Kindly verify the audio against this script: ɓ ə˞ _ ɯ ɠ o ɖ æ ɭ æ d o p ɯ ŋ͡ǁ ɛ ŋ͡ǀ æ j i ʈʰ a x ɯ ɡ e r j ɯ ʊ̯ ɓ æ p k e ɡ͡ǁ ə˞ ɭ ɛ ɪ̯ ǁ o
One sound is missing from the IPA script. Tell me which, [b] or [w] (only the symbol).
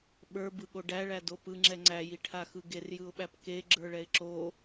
b